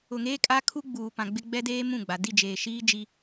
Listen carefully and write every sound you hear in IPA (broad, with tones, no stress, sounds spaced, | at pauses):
ʊ˨ ŋ eː˦ kʼ a˦ kʰ u˦ ɡ͡b uː˨ p ã˨ ɡ͡b ɪ˦ ɡ͡b ɛ˦ d eː˦ m ũ˦˨ ɡ͡b a˨ d i˦˨ d͡ʒ eː˨ ʃ iː˦ d͡ʒ i˦